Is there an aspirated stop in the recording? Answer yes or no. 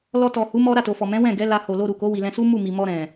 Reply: no